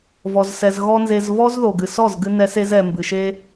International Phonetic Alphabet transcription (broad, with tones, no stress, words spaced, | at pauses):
vɔ˧zsɛ˧z ɣɔ˦nze˧z vɔ˦zðo˨ɡɨ˨sɔ˦˨z ɡɨ˦nɛ˦se˦z ɛ˨ mbɨ˨ʃe˦